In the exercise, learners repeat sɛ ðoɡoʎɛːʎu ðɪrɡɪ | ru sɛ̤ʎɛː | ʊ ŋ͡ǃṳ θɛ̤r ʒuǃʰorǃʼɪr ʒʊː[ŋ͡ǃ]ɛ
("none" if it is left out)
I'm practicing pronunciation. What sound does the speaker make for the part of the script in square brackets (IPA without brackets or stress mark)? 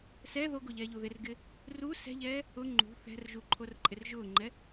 ŋ͡ǃ